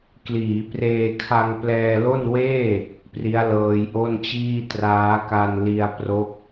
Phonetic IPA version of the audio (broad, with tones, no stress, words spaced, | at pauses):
kliː˩˦preː˧kʰa˧ŋ plɛː˧lo˥˩n weː˥˩ | pri˦˥a̯lɤː˧jʔo˥˩nt͡ɕiː˥˩ traː˦˥ka˧nli˧a̯ pro˥˩k̚